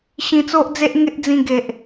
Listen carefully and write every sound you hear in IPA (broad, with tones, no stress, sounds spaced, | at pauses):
ɕ ĩ˧ t͡s o˦ ʔ d͡z e˦ ʔ ŋ e˦ ʔ d͡z ĩ˧ ɡ e˨ ʔ